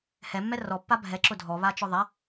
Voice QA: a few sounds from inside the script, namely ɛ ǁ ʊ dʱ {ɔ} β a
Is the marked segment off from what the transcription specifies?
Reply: no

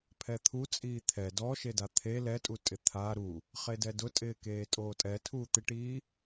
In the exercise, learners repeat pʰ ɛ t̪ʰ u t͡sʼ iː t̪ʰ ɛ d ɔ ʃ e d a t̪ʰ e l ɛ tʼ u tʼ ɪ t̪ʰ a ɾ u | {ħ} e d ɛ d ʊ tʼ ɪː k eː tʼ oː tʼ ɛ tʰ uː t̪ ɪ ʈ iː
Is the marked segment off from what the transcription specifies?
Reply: yes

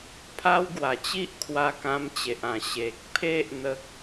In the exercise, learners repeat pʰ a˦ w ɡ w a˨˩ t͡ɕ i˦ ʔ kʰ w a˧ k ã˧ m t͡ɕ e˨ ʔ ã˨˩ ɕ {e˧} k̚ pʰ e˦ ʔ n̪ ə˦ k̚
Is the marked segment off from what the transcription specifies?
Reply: yes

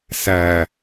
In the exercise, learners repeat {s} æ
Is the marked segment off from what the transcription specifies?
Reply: no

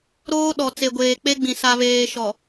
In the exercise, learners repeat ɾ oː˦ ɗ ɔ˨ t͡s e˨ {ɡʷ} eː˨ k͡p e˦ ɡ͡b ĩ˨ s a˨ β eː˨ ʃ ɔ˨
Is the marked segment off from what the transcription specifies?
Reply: no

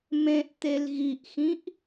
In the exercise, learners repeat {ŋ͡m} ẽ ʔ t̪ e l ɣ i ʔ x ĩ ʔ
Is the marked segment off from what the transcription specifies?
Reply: yes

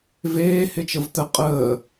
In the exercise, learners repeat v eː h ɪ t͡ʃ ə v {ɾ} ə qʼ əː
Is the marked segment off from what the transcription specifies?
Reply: yes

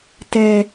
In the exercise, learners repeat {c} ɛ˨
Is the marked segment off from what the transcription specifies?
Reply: yes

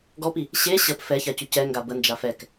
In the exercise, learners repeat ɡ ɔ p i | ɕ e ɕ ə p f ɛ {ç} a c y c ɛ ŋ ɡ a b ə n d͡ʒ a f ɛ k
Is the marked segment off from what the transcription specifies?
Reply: no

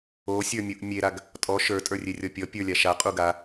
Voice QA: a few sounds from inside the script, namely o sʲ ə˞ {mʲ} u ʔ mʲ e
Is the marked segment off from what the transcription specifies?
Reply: no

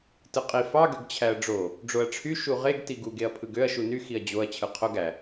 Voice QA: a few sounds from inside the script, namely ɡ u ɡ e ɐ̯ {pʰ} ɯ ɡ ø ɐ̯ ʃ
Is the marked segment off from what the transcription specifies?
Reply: no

